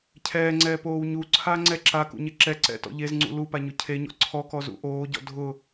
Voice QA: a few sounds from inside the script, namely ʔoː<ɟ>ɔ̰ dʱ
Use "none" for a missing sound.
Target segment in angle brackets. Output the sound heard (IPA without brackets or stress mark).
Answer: ɟ